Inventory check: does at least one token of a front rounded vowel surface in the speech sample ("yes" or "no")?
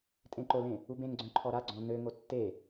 yes